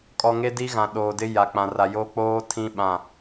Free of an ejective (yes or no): no